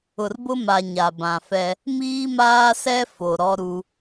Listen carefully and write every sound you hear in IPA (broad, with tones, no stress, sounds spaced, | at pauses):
ʊ˨ r b ʊ˦ m a˨ ɲ a˨ b ã˨ f ɛ˦ | m iː˦ m aː˦ s ɛ˦ f o˨ ɾ ɔ˦ ɾ u˦